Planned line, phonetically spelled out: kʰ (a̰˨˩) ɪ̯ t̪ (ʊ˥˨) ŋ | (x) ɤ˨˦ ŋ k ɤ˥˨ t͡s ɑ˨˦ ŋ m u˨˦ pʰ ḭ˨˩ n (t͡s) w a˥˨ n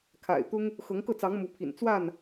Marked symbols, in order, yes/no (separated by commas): yes, no, yes, yes